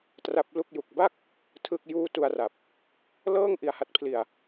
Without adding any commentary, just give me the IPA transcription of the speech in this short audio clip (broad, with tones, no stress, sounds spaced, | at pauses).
t r a˦˥ p̚ l u˥˩ k̚ j u˨˩ k̚ b a˥˩ k̚ | tʰ ɯ˥˩ k̚ j uː˥˩ t u˧ a̯ r a˨˩ p̚ | l ɤː˥˩ ŋ ʔ i˧ a̯ h a˦˥ t̚ pʰ l i˧ a̯